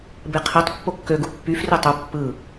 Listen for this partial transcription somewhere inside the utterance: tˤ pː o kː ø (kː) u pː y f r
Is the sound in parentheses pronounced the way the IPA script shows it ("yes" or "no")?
no